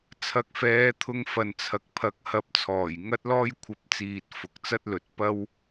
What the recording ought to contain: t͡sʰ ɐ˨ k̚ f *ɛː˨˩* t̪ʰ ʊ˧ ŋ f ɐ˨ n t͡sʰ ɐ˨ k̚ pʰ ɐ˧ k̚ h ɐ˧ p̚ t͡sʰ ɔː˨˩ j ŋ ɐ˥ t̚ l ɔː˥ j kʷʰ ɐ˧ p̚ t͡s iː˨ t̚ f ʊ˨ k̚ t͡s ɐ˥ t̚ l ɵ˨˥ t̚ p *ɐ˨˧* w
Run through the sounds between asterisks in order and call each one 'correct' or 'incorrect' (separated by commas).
incorrect, incorrect